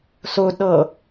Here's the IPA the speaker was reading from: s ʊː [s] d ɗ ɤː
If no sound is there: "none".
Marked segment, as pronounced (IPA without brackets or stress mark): none